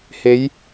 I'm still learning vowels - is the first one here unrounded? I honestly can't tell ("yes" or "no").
yes